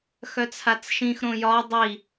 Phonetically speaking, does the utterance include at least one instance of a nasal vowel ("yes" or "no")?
yes